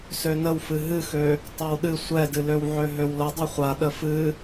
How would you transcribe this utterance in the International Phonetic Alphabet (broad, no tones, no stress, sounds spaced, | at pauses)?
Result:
s ø n ə w f ɨ ɦ ɨ x ø | tˤ ɛ w ɗ ɨ sʷ ɛ d ɨ l ø w ʕ ø ɦ ø w l ə dˤ ɨ χʷ a ɗ ə f ɨ